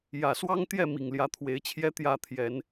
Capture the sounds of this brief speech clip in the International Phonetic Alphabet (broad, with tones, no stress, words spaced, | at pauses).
jä˨˩swɑ˦ŋ t̪jɛ˥˨mi˨˩ŋ ljä˨˦t̪ʰwe˨˦ɪ̯t͡ɕʰjɛ˦ t̪jä˥˨ t̪ʰjɛ˨˦n